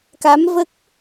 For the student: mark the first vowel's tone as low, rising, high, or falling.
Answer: rising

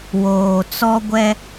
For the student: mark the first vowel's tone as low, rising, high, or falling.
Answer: low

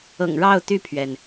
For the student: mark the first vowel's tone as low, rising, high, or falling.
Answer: low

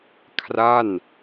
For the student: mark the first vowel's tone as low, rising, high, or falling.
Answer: falling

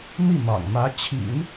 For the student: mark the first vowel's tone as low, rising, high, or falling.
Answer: falling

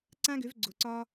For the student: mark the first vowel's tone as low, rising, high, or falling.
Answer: high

